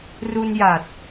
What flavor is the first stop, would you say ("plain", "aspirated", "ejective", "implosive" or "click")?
plain